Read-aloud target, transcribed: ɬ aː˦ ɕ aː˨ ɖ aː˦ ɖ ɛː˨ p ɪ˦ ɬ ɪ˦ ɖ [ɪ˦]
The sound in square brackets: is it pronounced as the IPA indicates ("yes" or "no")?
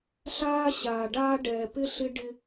yes